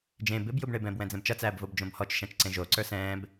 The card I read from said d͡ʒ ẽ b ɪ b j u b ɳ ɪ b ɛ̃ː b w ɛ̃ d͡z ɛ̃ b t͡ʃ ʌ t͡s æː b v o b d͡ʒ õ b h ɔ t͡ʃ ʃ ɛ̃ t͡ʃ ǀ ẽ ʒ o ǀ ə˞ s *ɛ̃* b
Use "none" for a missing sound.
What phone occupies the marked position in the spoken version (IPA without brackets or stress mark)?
ɛ̃ː